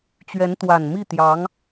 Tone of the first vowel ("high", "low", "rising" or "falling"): rising